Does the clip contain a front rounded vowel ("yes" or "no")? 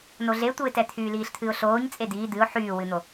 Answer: yes